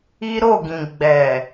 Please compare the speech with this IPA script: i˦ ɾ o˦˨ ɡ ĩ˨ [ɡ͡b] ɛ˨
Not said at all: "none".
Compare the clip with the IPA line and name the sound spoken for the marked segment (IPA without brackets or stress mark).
ɡ͡b